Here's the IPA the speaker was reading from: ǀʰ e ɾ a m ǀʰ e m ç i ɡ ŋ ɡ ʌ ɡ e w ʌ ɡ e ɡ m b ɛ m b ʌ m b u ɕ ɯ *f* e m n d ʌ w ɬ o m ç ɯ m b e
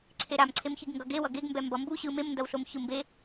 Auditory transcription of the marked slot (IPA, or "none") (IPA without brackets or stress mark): m